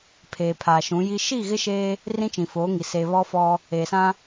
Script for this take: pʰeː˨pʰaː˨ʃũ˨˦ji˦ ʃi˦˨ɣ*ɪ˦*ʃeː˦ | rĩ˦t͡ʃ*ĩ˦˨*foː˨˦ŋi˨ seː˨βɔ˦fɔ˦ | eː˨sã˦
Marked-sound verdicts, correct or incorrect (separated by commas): correct, incorrect